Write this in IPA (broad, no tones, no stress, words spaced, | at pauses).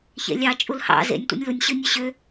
çḛlʲɑ t͡ʃʼulhɑ̰ zḛnʲ tʷḛnʲlunʲ ɕɯnʲɯɕø